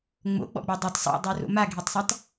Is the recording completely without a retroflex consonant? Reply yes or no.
yes